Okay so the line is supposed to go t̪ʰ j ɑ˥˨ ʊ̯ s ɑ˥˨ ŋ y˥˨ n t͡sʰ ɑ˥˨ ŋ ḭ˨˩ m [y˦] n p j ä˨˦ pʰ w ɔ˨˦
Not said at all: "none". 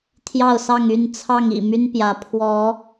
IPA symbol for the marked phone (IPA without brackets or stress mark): y˦